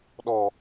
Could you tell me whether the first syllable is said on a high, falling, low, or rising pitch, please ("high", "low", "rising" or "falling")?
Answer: low